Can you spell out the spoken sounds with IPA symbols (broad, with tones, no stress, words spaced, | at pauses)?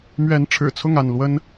mɥɛ˨˦n ʈ͡ʂʰɻ̩˨˩t͡sʰʊ˥˨ŋa˥˨n lwə˦n